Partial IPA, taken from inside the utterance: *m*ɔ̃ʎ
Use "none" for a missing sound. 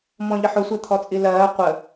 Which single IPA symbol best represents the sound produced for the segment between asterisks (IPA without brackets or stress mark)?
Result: m